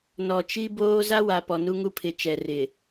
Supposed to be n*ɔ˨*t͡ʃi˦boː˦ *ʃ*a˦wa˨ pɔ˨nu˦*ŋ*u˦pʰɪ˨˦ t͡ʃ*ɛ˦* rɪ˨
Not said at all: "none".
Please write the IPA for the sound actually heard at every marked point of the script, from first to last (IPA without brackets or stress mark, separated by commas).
ɔ˨, z, ŋ, ɛ˨